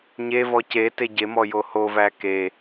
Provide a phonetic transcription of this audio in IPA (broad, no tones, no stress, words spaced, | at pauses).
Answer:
ɲevɔ ce teɟemɔ johovæ ke